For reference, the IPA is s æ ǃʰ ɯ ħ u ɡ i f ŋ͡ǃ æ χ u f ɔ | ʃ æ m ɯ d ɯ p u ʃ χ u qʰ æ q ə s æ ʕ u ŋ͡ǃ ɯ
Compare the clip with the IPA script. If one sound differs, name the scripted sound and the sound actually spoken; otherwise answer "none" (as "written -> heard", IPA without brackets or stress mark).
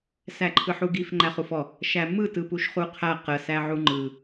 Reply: d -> t